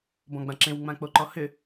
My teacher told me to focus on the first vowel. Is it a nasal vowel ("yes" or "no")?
yes